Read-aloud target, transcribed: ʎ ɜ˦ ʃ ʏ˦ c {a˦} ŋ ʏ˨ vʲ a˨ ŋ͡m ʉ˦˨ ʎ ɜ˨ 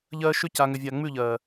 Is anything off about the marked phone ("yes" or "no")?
yes